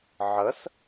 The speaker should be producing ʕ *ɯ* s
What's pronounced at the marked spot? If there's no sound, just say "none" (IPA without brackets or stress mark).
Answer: ə